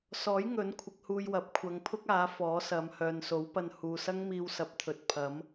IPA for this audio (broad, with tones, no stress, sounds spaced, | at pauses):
s ɔː˨˥ j ŋ ɵ˨˥ n kʷʰ ɪ˨˥ k̚ h uː˧ j w ɐ˨˥ p̚ kʷʰ ɐ˨˧ ŋ pʰ ʊ˥ k̚ aː˨˥ f ɔː˨˥ s ɐ˨˧ m h œː˨ n s o˨˥ w p ɐ˧ n h uː˨ s ɐ˥ ŋ m iː˧ w s ɐ˨˥ p̚ t̪ʰ ɵ˨ t̚ pʰ ɐ˨˥ m